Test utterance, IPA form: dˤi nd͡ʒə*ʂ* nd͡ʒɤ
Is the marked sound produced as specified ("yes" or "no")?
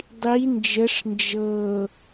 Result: yes